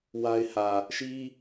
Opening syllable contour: high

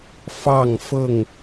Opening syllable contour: falling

